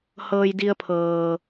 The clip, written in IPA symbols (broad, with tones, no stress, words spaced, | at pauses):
hɤː˧j di˧ə̯pʰɤː˩